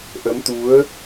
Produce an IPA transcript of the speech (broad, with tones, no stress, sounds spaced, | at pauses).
ʔ ə˨˦ m t̪ u˨˦ ə̯